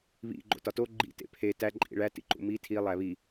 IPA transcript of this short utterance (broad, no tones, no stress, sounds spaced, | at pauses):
β ḭ ɡ͡ǃ o̰ t ɒ t o ɡ͡ǃ ḭ t ḛ pʰ e t æ ǃʼ ḭ ɭ æ t ḭ ǃ ṵ m i tʰ i lˠ æ β i